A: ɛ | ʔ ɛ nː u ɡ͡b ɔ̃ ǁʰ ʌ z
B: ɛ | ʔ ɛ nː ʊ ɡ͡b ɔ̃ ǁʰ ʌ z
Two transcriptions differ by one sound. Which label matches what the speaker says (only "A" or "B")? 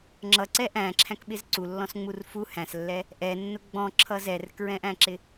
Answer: B